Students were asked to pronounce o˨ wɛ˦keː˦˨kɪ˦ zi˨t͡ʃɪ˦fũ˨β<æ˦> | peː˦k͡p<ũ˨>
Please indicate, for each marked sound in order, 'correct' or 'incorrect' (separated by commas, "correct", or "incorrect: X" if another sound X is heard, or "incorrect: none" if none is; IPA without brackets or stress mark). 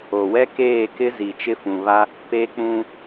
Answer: incorrect: a˦, incorrect: ũ˦